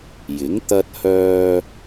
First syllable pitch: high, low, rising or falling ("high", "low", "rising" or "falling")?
rising